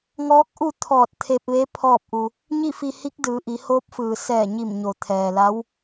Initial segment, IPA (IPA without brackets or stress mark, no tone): ŋ